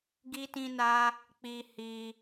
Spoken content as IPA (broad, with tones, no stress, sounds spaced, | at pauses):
ɡ i˦ t ĩ˦ n a˦ | k͡p i˧ h i˧